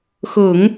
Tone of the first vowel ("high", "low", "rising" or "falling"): low